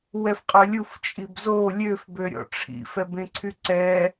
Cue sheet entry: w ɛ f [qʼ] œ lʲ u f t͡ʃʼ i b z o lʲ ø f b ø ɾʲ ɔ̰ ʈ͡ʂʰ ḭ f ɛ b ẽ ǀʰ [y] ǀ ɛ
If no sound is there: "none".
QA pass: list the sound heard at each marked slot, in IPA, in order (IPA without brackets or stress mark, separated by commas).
qʼ, y